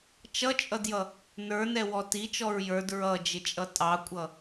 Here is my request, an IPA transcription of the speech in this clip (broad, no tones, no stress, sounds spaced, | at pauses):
t͡ʃ ʌ t͡ʃʼ ʌ d j ʌ | n ə˞ n ɛ w ɔ t i t͡ʃ ɔ ɹ j ə˞ d ɹ ʌ d͡ʒ ɪ t͡ʃʼ ʌ tʼ ɑ kʷʼ ʌ